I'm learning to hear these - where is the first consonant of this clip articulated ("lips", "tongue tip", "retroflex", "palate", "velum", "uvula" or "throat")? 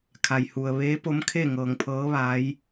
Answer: velum